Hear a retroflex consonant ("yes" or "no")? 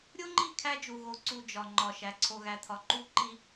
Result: no